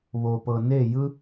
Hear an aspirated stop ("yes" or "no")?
no